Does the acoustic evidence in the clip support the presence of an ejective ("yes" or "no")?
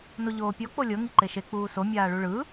no